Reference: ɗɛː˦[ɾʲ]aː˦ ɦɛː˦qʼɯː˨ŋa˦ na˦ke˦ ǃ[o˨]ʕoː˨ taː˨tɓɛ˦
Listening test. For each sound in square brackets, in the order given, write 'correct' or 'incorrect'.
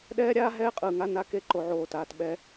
correct, correct

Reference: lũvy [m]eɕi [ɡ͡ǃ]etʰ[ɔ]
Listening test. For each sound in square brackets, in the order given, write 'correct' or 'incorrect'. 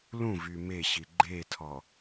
correct, correct, correct

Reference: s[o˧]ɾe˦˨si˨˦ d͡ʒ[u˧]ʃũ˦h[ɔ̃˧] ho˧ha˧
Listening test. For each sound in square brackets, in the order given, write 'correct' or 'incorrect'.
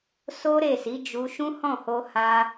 incorrect, correct, incorrect

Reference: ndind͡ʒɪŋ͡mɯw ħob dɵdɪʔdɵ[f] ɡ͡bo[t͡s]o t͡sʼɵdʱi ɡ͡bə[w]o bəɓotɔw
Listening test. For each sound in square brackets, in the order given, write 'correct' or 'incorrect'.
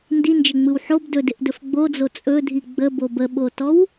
correct, incorrect, incorrect

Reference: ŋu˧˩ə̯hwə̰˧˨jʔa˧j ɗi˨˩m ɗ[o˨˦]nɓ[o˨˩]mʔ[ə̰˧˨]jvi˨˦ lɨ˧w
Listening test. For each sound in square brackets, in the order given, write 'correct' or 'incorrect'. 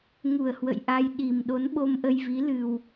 correct, incorrect, incorrect

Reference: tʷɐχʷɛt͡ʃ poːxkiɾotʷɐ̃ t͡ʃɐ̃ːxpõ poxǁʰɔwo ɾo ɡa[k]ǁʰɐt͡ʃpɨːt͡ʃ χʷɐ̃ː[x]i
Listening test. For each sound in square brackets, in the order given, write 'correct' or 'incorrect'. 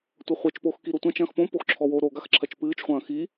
incorrect, correct

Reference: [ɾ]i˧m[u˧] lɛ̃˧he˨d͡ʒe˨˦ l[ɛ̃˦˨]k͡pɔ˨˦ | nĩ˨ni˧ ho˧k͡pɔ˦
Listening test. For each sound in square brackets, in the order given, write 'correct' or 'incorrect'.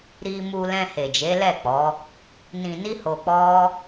correct, correct, incorrect

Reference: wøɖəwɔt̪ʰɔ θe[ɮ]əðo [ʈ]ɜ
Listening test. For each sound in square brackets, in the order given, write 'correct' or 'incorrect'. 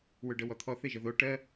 incorrect, correct

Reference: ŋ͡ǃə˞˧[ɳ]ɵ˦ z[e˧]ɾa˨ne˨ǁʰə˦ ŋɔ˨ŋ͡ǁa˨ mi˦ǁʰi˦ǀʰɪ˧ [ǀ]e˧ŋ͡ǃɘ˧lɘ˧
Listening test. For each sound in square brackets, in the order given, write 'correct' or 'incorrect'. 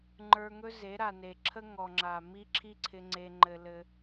incorrect, incorrect, incorrect

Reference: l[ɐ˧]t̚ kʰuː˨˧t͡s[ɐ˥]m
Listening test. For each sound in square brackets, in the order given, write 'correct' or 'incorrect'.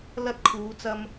correct, incorrect

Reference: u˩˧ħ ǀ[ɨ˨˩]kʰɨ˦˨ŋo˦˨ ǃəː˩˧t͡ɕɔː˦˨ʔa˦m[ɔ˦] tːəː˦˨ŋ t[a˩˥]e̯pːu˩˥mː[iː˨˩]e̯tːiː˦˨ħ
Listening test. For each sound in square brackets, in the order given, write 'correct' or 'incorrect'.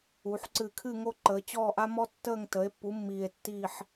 correct, correct, incorrect, correct

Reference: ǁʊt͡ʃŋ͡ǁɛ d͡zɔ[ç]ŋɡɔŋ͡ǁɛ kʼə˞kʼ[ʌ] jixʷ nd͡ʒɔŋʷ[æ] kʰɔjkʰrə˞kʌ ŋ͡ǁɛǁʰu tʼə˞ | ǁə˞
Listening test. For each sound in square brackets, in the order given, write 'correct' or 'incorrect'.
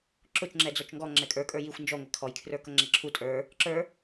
incorrect, incorrect, correct

